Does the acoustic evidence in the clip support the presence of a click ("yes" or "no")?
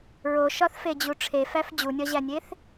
no